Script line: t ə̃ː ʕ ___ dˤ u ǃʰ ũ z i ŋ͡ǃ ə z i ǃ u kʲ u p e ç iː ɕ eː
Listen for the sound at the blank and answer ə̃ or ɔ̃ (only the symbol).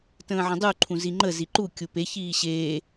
ə̃